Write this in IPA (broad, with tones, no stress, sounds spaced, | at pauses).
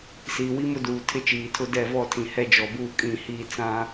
s iː˨ w i˦ m ʊ˦ d uː˨ tʰ ɪ˦ t͡ʃ iː˨ tʰ ʊ˦ d ɛ˦˨ v ɔ˦˨ tʰ ĩ˨ h ɛ˦ d͡ʒ ɔ˨ b uː˦ kʼ ĩ˦˨ h i˦˨ t͡s ã˦